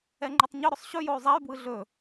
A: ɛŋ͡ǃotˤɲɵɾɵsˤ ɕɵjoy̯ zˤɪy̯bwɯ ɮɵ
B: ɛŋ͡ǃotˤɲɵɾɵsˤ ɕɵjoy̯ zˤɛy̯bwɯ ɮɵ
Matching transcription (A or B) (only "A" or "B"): B